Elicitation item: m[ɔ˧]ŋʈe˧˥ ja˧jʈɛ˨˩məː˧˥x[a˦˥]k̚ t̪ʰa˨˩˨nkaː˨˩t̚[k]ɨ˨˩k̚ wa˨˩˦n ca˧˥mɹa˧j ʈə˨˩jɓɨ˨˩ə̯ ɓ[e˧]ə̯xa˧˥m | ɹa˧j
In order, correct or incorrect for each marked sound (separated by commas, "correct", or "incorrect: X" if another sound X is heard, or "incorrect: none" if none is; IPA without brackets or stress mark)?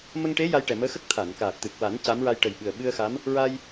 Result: incorrect: ə˧, incorrect: ə˦˥, incorrect: t̪, incorrect: ɨ˧